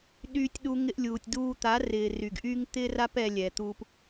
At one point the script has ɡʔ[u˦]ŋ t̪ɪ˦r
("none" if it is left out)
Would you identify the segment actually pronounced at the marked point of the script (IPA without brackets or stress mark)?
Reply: y˦